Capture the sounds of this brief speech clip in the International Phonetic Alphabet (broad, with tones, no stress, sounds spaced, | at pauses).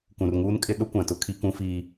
k ũ˨ r ŋ uː˦ n kʼ ɪ˦ ɗ ʊ˦ kʷ ã˨ t ʊ˦ kʰ i˦ k ũ˦ f iː˦